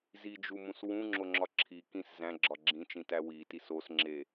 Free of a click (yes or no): no